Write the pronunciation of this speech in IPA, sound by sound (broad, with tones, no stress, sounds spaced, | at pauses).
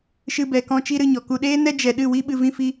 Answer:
ʃ ɨ˧ b ɛ˨ k ɔ̃˦ t͡ʃ i˦ ɾ ɨ˧ ɲ ɔ˨ k u˧ ɗ eː˦ n ɛ˦ d͡ʒ ɛ˨ ɗ ɨ˦˨ w i˦ ɓ ɨ˧ v ĩ˦ f i˦